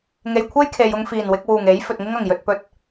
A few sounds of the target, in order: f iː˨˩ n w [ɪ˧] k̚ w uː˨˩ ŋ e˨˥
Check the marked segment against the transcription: correct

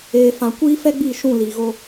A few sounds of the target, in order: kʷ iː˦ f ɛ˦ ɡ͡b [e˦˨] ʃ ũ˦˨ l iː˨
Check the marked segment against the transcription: incorrect: i˦˨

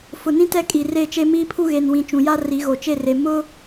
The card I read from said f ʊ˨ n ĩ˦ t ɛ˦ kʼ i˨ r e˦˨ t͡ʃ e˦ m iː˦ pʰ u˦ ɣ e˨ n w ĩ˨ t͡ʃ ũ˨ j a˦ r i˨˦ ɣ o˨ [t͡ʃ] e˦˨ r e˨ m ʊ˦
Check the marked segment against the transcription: correct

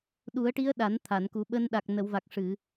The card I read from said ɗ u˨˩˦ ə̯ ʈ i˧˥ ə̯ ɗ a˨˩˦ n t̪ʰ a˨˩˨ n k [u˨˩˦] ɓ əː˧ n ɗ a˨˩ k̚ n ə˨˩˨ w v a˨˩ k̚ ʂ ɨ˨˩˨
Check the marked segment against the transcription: correct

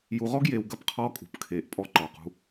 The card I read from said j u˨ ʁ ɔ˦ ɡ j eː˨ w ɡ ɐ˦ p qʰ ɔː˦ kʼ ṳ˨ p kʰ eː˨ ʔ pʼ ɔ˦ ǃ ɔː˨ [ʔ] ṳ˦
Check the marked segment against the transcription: incorrect: q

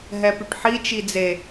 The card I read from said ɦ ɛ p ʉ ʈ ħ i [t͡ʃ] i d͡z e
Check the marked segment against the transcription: correct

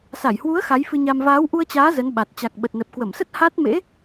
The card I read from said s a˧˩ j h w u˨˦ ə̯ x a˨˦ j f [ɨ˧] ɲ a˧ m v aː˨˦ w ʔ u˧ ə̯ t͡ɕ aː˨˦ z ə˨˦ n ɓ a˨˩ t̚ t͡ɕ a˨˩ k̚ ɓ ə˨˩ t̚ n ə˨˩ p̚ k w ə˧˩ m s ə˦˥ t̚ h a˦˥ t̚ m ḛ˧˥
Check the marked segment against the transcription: correct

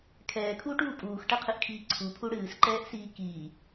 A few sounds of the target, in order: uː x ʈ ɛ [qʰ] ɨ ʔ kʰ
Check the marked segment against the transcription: correct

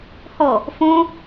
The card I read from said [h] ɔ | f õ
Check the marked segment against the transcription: correct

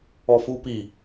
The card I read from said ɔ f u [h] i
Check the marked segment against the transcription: incorrect: p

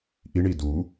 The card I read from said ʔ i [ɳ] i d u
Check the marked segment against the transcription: correct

